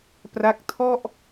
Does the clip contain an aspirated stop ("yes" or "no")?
yes